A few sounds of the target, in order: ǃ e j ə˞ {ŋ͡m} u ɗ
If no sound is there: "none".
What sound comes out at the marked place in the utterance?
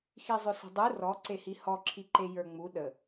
ŋ͡m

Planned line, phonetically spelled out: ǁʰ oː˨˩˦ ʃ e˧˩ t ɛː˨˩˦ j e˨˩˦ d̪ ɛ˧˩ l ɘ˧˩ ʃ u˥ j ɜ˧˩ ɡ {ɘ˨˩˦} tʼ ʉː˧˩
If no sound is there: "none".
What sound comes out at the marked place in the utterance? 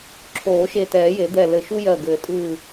ɘ˨˩˦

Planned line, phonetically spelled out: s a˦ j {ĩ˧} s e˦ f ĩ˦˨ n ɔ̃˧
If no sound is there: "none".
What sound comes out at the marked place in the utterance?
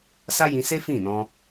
ĩ˧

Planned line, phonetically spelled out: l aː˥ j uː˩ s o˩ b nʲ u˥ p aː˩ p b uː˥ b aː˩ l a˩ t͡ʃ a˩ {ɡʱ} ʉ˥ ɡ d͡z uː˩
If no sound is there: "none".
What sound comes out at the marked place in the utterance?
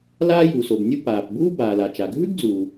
ɡʱ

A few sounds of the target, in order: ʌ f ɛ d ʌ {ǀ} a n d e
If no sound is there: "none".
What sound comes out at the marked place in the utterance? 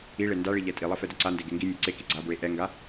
ǀ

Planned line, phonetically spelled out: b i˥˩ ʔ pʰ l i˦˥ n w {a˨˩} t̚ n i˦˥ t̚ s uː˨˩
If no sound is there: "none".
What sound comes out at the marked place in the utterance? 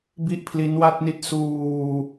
a˥˩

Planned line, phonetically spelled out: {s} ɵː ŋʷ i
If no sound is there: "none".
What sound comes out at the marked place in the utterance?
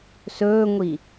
s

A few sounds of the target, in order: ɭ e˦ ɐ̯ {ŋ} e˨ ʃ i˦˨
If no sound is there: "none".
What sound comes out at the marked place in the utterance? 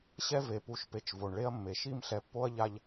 mː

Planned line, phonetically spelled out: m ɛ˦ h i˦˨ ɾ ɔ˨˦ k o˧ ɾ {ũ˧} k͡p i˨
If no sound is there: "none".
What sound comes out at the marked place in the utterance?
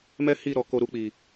u˧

